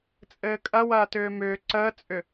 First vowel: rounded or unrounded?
unrounded